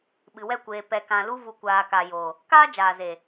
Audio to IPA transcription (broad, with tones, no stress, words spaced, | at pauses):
ɓɨ˨wɛ˦˨ kʷeː˨ pɛ˨kã˨ lu˧vu˨kʷaː˨ka˨ jo˨ | kaː˦d͡ʒaː˨ ze˨